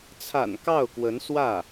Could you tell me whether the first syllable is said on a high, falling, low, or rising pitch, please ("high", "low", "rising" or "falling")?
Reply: low